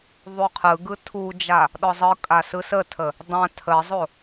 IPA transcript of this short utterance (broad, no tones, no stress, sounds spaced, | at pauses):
ðˤ u qʰ ɯ ɡ ɯ tʰ u d͡ʒ a | ɗ ɔ zˤ ɯ kʼ a s ɯ s ə tʰ ə | dˤ ã tʰ ə zˤ o